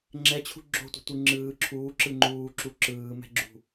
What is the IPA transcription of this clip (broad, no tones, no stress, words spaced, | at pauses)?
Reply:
ŋ͡ǁɛt͡ɕʰṳ ɡ͡ǁo̤tʷe̤ tʷɯŋ͡ǁɯː ǁʰuː ǁɯŋ͡ǃuːǁu ǁɯːmɛ̤ɡ͡ǁṳ